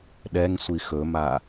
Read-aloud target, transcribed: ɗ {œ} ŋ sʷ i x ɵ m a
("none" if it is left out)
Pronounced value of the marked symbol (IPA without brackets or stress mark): ɛ